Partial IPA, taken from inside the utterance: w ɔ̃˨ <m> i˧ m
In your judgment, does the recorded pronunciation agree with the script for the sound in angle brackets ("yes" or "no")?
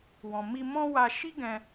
yes